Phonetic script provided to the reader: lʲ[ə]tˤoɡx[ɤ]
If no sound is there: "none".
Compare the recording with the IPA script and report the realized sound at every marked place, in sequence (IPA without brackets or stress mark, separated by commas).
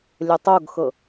ə, ɤ